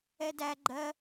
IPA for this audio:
ɛ d æ ɡ͡ǃ ɜ

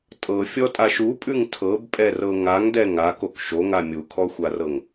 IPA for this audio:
tʼ ɤ fʲ ɔ tʼ a ʃ u pʼ ʉ ŋ tʰ ɤ b pʼ ɛ r ɤ ŋ a ŋ d ɛ ŋ a k o k ʃ o ŋ a mʲ u kʰ ɔ xʷ a r ɤ ŋ

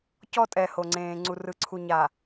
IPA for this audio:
c ɔ˦ tʼ ɛ˨ h o˨ ŋ͡ǀ ẽː˨ ŋ͡ǀ u˨ r ɯ˨ ǀʰ u˨ ɲ a˨

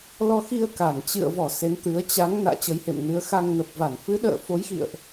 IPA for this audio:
l ɔ˧ x i˧ ə̯ k a˧˩ n t͡ɕ ɨ̰˧˨ ə̯ v ɔ˧˩ s e˨˦ n t̪ ɨ˨˦ ə̯ t͡ɕ a˨˦ ŋ n a̰ː˧˨ t͡ɕ ə˨˦ j h ḛ˧˨ m n ɨ˨˦ ə̯ x a˧ ŋ n ə˨˩ p̚ v a˧˩ n f ɨ˨˦ ɗ ə̰ː˧˨ f o˨˦ j x ḭ˧˨ ə̯ ʔ

